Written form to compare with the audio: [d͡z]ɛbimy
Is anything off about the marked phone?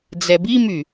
no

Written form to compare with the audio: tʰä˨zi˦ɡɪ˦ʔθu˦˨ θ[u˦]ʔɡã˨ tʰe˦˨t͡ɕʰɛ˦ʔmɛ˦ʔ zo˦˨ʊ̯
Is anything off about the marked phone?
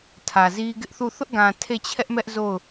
yes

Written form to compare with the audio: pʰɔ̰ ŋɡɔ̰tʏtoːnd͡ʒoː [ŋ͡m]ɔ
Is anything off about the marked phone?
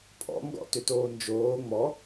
no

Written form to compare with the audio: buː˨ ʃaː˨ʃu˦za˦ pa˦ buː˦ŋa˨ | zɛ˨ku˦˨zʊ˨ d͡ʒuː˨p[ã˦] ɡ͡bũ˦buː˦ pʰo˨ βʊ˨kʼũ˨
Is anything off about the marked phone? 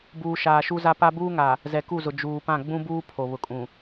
yes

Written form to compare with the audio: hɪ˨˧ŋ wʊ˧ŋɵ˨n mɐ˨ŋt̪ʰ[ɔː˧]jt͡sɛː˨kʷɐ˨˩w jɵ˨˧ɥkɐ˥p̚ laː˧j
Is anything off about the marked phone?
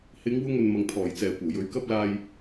yes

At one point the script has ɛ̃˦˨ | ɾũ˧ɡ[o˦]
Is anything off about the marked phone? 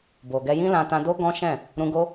no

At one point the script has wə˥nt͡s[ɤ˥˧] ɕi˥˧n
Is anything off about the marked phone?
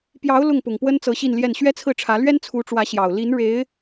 yes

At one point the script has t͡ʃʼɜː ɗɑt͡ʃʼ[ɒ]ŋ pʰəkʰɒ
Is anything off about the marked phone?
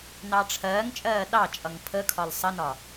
yes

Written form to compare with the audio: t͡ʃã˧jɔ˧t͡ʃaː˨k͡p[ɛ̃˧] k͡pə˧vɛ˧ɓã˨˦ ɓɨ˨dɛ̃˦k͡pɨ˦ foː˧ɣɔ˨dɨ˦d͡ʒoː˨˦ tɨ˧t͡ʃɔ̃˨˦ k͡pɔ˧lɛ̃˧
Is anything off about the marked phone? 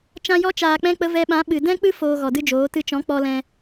no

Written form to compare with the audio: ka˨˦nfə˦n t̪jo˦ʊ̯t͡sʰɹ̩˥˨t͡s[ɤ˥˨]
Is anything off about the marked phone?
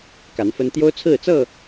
no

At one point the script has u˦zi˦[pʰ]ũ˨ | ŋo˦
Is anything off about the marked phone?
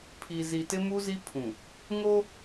no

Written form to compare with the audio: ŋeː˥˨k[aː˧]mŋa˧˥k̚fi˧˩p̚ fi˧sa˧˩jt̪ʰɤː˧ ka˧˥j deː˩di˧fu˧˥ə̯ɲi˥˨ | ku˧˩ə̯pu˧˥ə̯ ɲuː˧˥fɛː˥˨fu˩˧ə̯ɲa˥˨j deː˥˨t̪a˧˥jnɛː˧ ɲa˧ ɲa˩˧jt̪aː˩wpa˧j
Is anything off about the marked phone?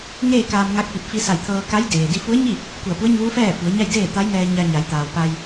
no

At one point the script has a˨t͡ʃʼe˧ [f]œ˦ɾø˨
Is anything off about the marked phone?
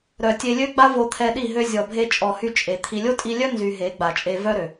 yes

